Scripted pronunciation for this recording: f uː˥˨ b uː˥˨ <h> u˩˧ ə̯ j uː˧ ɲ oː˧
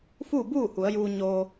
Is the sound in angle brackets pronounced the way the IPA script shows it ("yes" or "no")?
yes